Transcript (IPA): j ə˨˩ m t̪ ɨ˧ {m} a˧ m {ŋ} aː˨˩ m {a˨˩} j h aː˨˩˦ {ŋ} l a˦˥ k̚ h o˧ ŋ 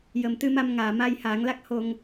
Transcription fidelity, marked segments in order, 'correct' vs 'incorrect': correct, correct, incorrect: a˧, correct

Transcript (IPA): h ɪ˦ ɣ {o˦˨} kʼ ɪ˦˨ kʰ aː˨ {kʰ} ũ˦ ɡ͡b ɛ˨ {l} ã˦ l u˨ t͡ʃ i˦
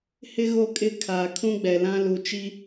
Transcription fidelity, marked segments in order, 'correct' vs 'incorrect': correct, correct, correct

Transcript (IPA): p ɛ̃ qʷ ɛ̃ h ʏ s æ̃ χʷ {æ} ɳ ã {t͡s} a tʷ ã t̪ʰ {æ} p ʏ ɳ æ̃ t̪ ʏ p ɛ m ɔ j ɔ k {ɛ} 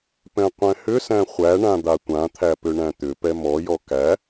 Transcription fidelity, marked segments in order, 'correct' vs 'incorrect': correct, incorrect: d̪, correct, incorrect: æ

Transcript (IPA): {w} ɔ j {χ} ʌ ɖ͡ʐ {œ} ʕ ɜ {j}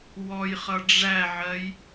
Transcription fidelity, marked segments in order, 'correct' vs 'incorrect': correct, correct, incorrect: æ, correct

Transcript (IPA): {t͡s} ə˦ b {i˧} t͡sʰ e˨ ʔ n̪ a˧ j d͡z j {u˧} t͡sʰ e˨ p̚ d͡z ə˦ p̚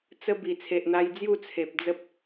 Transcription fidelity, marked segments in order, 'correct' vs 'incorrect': correct, incorrect: i˨˩, incorrect: u˥˧

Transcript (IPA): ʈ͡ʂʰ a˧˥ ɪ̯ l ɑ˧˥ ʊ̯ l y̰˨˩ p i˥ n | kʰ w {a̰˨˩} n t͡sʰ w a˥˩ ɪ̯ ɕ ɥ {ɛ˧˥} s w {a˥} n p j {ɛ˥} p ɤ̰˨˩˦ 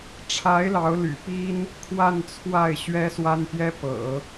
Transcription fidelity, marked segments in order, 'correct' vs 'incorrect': incorrect: a˥˧, incorrect: ɛ˥, correct, correct

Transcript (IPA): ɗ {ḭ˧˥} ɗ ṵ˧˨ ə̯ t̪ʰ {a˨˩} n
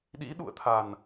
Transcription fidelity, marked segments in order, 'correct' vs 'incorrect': correct, correct

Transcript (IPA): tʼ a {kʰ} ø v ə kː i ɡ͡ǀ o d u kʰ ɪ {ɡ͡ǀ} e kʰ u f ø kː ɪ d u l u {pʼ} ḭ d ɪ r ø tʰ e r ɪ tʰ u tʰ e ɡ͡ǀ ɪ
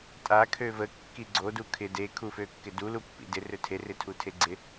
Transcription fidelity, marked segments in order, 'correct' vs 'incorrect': correct, incorrect: d, incorrect: pː

